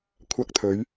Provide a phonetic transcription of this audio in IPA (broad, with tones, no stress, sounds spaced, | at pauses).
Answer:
kʷʰ ɐ˧ k̚ t̪ʰ ɵ˨˧ ɥ